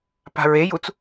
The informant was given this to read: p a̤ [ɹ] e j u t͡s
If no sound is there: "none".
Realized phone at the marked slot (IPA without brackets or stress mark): ɹ